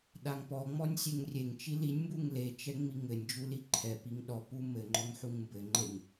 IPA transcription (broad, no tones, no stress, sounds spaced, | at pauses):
ɗ a ŋ p ɔ ŋ͡m ɔ nʲ sʲ e ŋ rʲ e ŋ t͡ʃ i l i nʲ m b u ŋ l e t͡ʃ ɛ ŋ͡m i ŋ ɘ nʲ d͡ʒ u l i ǃʰ ɛ p i ŋ ɗ ɔ p u m ɘ ŋ͡ǃ ɔ ŋ ħ u ŋ m b ɘ ŋ͡ǃ e ŋ